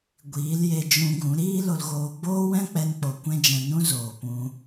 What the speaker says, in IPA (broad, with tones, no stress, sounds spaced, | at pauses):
ɡʷ iː˨˦ l j e˧ d͡ʒ ũ˧ ɡ ũ˨˦ ɾ iː˦ l o˧ l ɣ oː˧ ɡ͡b oː˦ w ɛ̃˦ k͡p ɛ˧ n k͡p o˨ kʷ ɛ̃˦ d͡ʒ ɛ̃˧ n ũ˦ z oː˨ p ũ˧